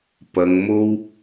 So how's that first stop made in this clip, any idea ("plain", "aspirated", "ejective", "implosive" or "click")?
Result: plain